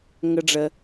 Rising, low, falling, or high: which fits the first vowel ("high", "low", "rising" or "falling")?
high